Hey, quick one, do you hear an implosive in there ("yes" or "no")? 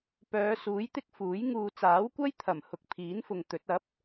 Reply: no